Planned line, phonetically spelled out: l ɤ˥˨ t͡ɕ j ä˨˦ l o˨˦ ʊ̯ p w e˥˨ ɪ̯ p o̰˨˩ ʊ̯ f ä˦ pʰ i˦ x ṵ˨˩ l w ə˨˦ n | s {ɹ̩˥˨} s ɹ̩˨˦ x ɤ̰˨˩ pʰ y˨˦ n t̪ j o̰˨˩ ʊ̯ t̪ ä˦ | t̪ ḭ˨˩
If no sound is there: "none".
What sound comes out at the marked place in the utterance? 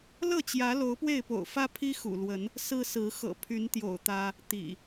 ɹ̩˦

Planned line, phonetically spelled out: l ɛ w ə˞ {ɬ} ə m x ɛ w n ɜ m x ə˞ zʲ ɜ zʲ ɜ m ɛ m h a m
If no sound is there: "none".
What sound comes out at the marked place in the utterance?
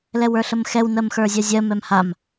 ɬ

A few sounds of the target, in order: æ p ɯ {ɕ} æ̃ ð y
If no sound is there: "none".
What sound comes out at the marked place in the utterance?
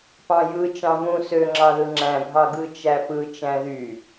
t͡ʃ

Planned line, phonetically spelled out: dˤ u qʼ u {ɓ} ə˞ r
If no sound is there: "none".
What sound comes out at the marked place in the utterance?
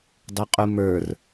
m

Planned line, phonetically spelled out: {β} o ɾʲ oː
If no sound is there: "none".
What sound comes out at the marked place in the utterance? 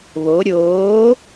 β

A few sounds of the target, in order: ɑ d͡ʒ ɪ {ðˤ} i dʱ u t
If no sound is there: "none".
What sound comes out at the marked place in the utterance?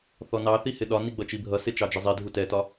zˤ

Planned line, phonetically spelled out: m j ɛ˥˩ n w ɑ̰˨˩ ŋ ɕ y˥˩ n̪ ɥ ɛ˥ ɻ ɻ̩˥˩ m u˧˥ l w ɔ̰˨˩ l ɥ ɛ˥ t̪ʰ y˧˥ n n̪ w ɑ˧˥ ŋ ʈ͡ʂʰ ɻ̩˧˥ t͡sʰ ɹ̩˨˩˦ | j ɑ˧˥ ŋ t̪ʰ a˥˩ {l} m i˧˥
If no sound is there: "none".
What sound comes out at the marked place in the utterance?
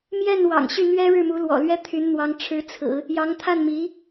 n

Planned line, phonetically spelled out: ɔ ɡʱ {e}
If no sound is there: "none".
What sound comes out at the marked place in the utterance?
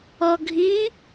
i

